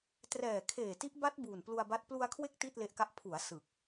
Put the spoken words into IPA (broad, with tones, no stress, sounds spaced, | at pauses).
t r ɛː˨˩ kʰ eː˨˩ t i˦˥ ʔ b a˦˥ t̚ b uː˨˩ n p l u˧ a̯ b a˦˥ t̚ p l u˧ a̯ kʰ w e˦˥ k̚ t i˥˩ t̚ l e˦˥ ʔ k a˦˥ ʔ pʰ u˩˦ a̯ s ɯ˨˩ k̚